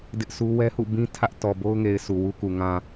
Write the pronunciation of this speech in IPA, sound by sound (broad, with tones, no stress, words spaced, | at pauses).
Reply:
dɪ˦ʔsu˦ wɛ˦hṵ˦˨bĩ˦ tʰä˦ʔ tɔ˨bo˦ʊ̯ŋe˨ɪ̯ sʰu˨wu˦ku˨ ŋã˨